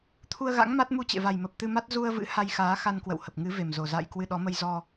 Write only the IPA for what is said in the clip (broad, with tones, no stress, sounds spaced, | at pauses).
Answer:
t̪ʰ u˧ ə̯ ɣ a̰˧˥ ŋ m a˦˥ t̚ m u˧ t͡ɕ ḛ˧˨ v a˨˩ j m ə˨˩ p̚ t̪ ɨ˧ m a˦˥ t̚ z u˧ ə̯ v ɨ̰˧˥ h a˧ j x aː˨˦ x a˧ n k w ə̰˧˨ w h ə˨˩ p̚ ŋ ɨ˨˦ v e˨˩ m z o˨˩ z a̰ː˧˨ j k w ɨ˧ ɗ ɔ˨˦ m ə˧ j z ɔ˧